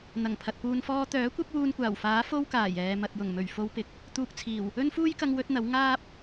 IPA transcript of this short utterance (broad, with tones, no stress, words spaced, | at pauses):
n̪ɐ˨˩ŋpʰɐ˨t̚puː˧n fɔː˧t̪œː˨˥kʷɐ˥p̚ wuː˧nkʷaː˨˩wfaː˨˥ fo˥wkaː˨˩jɛː˨ mɐ˨t̚jʊ˨˩ŋmɵ˨˩ɥ fo˧wpɪ˨˥k̚ | t̪uː˧k̚t͡sʰiː˨˩w | ɵ˥nfuː˥jkɐ˧ŋ wɵ˥t̚n̪ɐ˨˥w ŋaː˥p̚